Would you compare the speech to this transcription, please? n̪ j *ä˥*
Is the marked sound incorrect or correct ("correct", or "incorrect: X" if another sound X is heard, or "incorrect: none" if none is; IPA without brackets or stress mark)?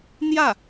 incorrect: ä˥˩